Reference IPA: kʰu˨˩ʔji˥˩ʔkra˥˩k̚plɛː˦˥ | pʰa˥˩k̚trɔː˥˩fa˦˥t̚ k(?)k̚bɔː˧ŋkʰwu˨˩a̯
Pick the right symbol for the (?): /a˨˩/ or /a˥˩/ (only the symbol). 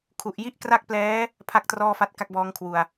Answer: a˥˩